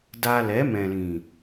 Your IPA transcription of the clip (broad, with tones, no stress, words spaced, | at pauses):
da˧ lɛ˨˦mɛ̃˨lĩ˨